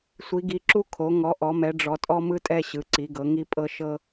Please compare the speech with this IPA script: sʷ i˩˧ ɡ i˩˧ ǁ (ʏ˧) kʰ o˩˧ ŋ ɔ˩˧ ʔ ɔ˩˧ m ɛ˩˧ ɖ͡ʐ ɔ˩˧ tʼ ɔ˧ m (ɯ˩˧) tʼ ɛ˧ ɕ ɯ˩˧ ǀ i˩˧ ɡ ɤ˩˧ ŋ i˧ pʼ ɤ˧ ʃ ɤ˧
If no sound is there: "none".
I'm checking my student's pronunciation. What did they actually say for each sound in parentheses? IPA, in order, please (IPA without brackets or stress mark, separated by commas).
u˧, ɯ˧